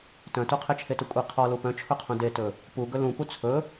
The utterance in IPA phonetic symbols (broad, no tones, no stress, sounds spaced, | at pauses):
t œ̃ t u qʰ e t͡ʃʰ e t u kʷʼ e qʰ ɔ l u p œ̃ t͡ʃʰ ɵ qʰ ũ d e t ɵ | p u ɡ ɵ l ũ p u t͡sʰ ɵ